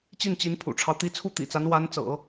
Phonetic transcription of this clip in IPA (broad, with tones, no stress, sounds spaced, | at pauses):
t͡ɕ i˥˩ n t͡ɕ i˧˥ n pʰ ṵ˨˩ ʈ͡ʂʰ ɑ˦ ʊ̯ t̪ i˧˥ t͡sʰ u˥˩ t̪ ḭ˨˩ t͡s a˧˥ n w a˧˥ n t͡s ɤ̰˨˩˦